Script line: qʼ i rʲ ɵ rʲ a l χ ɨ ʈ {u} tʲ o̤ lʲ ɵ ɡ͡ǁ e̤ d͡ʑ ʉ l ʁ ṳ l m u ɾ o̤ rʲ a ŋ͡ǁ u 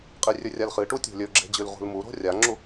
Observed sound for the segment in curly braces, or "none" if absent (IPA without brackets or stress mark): u